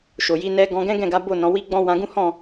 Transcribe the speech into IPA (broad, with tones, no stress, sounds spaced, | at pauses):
ʃ o˨ j i˧ n ɛ˧ ɡ ɔ̃˧ ɡ ɛ̃˦ ɡ ɛ̃˦˨ ɡ a˨˦ b o˦˨ n ɔ̃˨˦ w i˦ ɡ͡b ɔ̃˦ w ã˧ ɡ ũ˦ h ɔ̃˦˨